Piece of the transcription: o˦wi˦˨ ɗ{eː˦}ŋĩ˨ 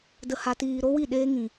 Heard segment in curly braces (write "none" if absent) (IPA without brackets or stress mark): eː˦